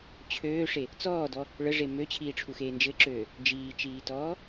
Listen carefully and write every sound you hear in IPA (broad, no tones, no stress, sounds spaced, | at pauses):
t͡ɕʰ øː ʂ e | t͡s ɔː d ɔ | ɭ ə ʐ e m ø t͡ɕʰ iː ʈ͡ʂʰ u x eː n d͡ʒ ɘ ǁ øː | d͡ʒ iː t͡ʃ iː t ɔː